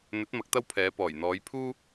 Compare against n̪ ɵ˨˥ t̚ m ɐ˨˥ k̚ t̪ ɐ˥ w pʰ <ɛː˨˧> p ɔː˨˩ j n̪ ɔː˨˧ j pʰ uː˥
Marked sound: correct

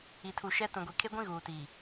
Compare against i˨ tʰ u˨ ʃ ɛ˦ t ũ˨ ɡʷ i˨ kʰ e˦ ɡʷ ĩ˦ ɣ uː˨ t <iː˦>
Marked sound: incorrect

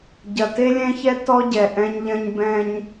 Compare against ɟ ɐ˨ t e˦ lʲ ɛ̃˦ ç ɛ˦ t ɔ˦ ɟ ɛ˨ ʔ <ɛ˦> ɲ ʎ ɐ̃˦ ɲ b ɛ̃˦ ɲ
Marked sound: incorrect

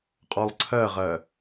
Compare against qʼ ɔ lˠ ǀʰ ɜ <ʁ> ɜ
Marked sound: correct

